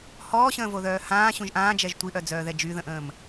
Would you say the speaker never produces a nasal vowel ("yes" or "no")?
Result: no